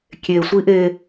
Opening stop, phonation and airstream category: plain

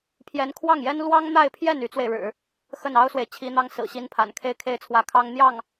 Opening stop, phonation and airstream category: aspirated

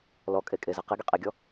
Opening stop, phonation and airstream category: ejective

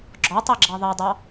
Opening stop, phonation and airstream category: click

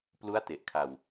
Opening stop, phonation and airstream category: plain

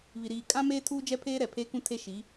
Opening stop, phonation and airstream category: ejective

